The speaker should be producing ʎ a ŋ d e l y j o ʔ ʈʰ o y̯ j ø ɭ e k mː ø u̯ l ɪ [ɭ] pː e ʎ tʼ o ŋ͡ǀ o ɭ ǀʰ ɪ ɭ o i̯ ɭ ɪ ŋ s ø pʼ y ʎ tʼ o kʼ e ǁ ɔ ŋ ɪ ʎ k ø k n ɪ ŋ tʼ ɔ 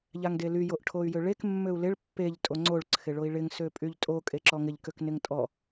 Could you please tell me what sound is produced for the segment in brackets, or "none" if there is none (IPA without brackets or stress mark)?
ɭ